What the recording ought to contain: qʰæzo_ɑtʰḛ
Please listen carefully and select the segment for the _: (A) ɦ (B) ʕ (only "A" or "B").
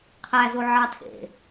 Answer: B